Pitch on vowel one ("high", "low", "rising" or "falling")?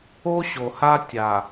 high